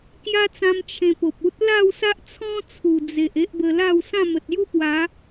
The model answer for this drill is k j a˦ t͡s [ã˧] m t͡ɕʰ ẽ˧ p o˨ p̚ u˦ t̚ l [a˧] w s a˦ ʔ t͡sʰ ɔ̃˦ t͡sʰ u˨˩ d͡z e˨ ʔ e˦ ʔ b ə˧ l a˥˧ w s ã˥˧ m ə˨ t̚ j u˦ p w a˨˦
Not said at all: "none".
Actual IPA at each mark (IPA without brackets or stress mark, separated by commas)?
ã˧, a˥˧